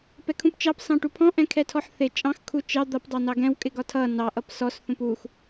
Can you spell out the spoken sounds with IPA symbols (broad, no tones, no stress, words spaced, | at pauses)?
pɛkʰũpt͡ʃɑp sɑ̃ʈupʰɔ̃ ʔɛ̃kʰɛtʰɔħθɪ t͡ʃʼɑ̃x kʰut͡ʃɑ d̪ʌp dˤɑnɑɡɛ̃w kʼɪɡɒtʰʌ nɑ ʔʌpsɔs θũpux